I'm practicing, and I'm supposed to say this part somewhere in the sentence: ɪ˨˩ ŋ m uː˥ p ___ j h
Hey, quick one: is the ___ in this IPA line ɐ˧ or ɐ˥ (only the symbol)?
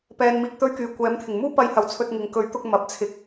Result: ɐ˧